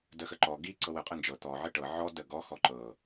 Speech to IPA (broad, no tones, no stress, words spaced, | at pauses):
dəxəǃɔ ɡi ǀɤwə qʼənd͡ʒɤ t̪ɔ ʕəʈɤ ʕɔ dəɡɔ xɔǃɤ